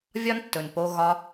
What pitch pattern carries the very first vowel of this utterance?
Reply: high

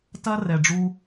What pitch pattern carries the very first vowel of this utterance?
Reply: high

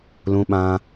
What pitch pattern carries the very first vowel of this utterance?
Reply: high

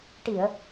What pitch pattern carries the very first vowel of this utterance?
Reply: low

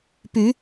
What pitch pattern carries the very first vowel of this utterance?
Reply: rising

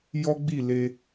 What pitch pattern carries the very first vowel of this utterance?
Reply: high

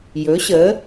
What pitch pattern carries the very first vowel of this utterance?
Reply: rising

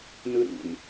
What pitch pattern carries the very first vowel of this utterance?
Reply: high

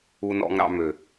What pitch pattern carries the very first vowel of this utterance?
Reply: low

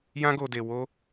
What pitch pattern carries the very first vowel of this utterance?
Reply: high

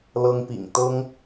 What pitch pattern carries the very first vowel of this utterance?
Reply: high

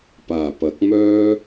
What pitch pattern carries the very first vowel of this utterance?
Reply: low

